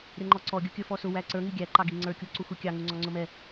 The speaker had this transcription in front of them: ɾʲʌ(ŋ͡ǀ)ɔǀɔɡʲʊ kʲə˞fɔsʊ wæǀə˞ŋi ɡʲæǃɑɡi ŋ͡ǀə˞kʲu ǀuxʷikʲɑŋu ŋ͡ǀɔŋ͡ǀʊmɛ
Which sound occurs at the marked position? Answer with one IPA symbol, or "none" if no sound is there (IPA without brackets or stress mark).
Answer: ŋ͡ǃ